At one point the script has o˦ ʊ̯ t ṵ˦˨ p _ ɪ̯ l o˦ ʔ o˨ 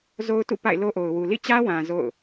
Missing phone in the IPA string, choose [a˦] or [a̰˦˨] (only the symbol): a̰˦˨